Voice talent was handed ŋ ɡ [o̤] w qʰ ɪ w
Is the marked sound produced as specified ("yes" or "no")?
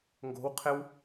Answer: yes